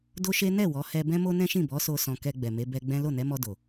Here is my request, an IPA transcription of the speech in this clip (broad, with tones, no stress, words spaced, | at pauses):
do˦ʃe˦ nɛ˦˨ wɔ˨˦ hɛ˧ bɛ̃˦mo˦nɛ̃˦ʃĩ˦˨ bɔ˨˦so˧ sɔ̃˧ kɛ˧ ɡ͡bɛ˨me˨˦ bɛ˦ ɡ͡bɛ̃˦ lo˦˨nɛ˨˦mɔ˧do˨